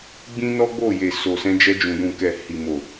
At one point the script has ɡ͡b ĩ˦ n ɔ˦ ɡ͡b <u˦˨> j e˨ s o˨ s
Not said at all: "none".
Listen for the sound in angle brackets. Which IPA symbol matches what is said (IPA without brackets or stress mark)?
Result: o˦˨